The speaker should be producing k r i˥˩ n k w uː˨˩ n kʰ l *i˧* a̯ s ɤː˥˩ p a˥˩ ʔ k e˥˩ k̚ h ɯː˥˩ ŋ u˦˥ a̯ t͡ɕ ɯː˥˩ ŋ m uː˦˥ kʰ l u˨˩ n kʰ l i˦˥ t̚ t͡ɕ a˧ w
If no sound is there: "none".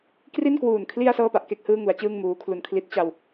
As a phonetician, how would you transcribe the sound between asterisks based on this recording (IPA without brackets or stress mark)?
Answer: i˧